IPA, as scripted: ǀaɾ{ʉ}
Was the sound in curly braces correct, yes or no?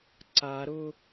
no